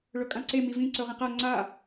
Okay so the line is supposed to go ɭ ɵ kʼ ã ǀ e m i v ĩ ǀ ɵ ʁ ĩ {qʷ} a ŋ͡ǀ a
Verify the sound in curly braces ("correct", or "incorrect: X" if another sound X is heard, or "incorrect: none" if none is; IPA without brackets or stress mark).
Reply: incorrect: q